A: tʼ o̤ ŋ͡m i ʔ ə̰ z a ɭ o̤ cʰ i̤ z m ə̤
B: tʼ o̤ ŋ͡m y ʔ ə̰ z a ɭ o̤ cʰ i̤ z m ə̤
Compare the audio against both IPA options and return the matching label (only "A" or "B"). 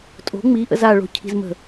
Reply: A